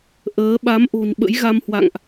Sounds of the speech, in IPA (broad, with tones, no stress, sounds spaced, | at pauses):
ʔ əː˨˦ ɓ a˨˦ m ʔ o̤˨˩ n ɓ ə̰˧˥ j ɣ a˧ m h w a̰˧˨ ŋ ʔ